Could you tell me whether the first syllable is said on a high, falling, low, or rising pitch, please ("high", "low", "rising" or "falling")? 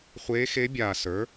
rising